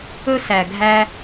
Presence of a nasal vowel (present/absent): absent